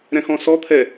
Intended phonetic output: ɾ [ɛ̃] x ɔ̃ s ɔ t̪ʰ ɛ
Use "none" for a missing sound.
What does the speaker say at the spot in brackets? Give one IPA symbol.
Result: ɛ̃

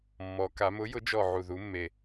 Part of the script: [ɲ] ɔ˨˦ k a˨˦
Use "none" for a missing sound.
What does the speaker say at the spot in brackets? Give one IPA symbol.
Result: mː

